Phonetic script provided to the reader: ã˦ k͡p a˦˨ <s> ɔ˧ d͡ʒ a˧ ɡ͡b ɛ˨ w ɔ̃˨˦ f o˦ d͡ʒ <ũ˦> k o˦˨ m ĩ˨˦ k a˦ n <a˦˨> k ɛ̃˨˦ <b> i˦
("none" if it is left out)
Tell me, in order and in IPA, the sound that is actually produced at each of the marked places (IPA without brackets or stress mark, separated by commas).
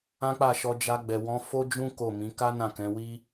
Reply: ʃ, ũ˦, ã˦˨, w